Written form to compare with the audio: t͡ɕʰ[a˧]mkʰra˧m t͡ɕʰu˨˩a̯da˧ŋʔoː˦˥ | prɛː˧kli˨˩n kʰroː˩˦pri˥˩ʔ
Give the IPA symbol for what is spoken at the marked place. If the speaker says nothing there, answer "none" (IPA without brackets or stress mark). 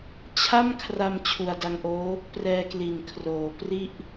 a˥˩